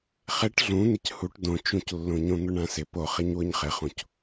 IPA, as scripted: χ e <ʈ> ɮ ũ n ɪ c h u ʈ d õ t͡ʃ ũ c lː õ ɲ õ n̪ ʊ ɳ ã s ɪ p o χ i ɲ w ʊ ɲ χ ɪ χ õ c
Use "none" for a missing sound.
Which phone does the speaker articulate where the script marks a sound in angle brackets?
ʈ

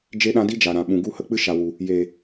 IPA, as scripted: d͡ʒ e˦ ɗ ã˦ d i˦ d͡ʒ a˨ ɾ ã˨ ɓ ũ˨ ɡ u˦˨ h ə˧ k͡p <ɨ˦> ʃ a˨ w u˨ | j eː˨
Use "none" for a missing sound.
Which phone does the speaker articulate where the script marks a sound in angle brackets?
ɨ˦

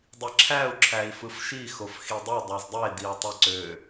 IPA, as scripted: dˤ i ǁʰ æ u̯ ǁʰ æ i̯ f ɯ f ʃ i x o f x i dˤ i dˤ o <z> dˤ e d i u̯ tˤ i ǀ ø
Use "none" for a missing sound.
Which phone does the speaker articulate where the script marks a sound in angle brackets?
z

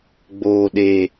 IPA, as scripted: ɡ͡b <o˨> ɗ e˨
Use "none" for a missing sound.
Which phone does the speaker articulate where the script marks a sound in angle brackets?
oː˨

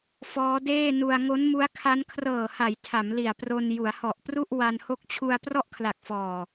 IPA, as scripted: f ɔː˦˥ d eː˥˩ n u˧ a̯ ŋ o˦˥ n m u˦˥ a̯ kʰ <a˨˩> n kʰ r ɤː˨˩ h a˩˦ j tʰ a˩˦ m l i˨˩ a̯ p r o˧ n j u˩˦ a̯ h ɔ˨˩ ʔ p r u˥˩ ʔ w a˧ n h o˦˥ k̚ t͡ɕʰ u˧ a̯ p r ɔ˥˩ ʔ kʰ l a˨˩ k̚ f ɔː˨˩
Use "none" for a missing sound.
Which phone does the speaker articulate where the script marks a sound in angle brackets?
a˦˥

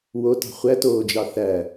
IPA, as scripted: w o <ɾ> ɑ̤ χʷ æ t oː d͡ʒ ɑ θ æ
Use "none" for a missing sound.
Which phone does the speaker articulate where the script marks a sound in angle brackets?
t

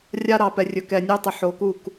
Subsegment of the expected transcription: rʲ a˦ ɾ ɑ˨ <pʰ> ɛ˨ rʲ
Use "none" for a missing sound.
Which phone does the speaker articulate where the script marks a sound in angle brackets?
p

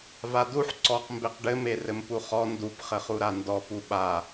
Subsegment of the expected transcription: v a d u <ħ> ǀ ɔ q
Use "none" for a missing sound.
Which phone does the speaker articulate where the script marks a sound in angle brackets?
ħ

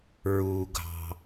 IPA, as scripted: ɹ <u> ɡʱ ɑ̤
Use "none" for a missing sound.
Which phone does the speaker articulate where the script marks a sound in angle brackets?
u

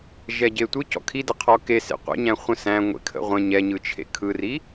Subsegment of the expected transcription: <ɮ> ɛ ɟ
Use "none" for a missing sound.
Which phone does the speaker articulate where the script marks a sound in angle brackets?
ʒ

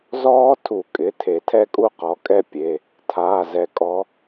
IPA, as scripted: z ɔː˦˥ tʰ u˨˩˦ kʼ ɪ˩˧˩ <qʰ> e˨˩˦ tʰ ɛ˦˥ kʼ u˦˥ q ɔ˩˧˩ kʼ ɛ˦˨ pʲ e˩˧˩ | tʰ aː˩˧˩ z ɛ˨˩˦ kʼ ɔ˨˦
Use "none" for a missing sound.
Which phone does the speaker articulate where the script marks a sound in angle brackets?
tʰ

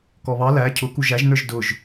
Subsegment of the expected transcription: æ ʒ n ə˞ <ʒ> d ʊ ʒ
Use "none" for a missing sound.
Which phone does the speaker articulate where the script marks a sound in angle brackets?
ʒ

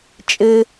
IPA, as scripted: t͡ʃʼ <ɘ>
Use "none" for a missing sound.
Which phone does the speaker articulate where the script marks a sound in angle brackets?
ɘ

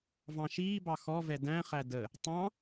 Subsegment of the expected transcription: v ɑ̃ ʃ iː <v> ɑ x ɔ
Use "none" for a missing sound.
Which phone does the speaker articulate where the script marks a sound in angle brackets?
b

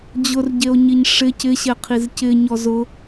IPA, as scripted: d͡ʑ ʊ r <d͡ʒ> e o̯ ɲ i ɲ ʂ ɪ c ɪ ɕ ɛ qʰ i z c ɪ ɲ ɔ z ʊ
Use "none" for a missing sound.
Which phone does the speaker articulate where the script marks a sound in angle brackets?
ɟ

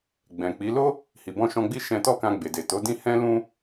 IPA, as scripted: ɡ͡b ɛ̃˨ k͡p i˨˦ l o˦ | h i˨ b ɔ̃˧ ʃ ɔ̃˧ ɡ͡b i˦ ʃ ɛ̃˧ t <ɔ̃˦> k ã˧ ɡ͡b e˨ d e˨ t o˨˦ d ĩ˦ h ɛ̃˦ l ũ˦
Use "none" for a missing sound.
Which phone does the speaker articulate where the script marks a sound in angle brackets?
ɔ˦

